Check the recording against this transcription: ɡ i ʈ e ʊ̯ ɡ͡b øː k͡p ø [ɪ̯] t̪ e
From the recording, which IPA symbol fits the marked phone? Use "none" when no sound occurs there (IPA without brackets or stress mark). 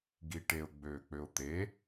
ʊ̯